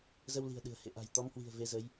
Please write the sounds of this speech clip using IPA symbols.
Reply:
z ə˧ w l i̤˨˩ ə̯ ɗ ɨ̤˨˩ ə̯ h ḛ˧˨ ʔ a̤˨˩ j t̪ ɔ˨˦ m h w i̤˨˩ ə̯ v e˨˦ z ə˨˦ j

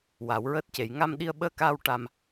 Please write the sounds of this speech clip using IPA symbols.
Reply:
w a˨˩˦ w ɹ əː˦˥ t̚ c e˨˩˦ j ŋ a˧ m ɗ i˧ ə̯ ɓ əː˧ k aː˧ w ʈ a˧ m

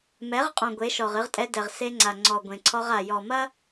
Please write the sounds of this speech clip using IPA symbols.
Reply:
m ɛ˨˦ ʁ qʼ ɔ̃˨ ɡʷ e˨˦ ʃ ɔ˨ ʁ ɨ˦ ʁ tʼ ɛ˦ d ɛ˨ ʁ s e˦ ŋ͡ǀ a˨ ŋ͡ǀ ɔ˨ ɡʷ ẽ˨ ǀʰ ɔ˦ ʁ a˨ j ɔ˨ m ɐ˦

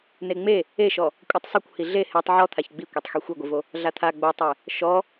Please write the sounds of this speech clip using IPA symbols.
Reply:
n e ŋ͡m e | e ʃ ɔ | kʷʼ ɯ tˤ sˤ u kʷ h i ɮ e h e tˤ ʕ ɔ t̪ʰ a ç ɡ͡b i kʷ e tˤ x i xʷ e ɡʷ i v o | ɮ a t̪ʰ a ɡ͡b o tˤ ɛ | ʃ ɔ

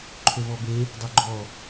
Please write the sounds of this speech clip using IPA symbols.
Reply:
ǃʰ ɵ v ɔ b e | dˤ ø ɡ͡ǃ ɔ

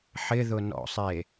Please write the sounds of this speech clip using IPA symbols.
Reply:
ħ ɪ ð ʊ n ɔ̰ sˤ e

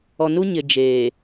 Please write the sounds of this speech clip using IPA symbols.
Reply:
ɔ˨ n u˦ ɲ ɪ˨ d͡ʒ eː˨

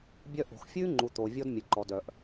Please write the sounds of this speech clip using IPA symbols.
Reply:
bʲ œ˦ ʔ o̤˨ x fʲ ʉː˦ ŋ͡ǃ u˨ t̪ oː˨ vʲ ɔ˦ d mʲ ø˨ ǃ ɔ˨ d œ˨ ʔ

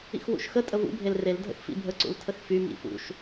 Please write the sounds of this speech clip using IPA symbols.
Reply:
ḭ x w ṵ ʃ x ə tʼ ə v ṵ bʱ e l r e l dʱ ə̰ x f ḭ bʱ ə ǀ ṵ l tʰ ə x f y m ḭ f ṵ ʃ

